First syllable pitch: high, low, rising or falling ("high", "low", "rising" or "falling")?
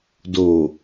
low